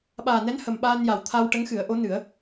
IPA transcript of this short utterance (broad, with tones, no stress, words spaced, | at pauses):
ɓaː˨˩nɛ˧˥n hə˨˩mɓaː˧nja˨˩wt̪ʰa˧w ʈə˧˥ŋxɨ˨˩˦ə̯ʔo˧˥nɨ˨˩˦ə̯